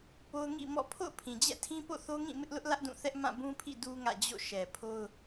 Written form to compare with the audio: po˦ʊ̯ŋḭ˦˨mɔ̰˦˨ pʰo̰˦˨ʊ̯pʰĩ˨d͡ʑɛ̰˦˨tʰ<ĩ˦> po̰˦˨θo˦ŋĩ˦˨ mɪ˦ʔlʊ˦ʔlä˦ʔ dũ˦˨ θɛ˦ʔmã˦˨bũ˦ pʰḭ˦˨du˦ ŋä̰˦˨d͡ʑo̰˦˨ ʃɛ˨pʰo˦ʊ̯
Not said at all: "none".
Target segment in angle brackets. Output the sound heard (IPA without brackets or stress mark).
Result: ĩ˦